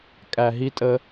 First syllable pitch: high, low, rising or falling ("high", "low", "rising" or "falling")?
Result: low